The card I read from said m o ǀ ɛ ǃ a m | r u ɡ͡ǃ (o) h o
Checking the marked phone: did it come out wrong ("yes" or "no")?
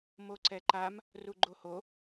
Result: no